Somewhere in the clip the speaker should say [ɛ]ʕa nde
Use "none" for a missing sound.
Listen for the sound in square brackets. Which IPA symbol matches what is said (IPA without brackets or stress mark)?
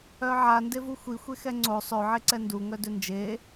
œ